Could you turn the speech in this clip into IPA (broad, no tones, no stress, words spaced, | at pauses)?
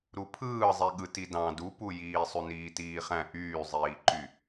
ɾupʰɯːzˤiɠɯ tidɑ̃ dupujiː sˤyniːtiːχæ̃ ʔyːzˤiːǃy